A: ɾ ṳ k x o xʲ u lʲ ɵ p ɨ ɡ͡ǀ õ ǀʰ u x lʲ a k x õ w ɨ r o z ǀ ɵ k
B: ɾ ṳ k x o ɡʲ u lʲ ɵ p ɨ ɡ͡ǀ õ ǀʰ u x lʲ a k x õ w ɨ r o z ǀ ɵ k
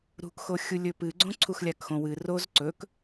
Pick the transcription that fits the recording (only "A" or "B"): A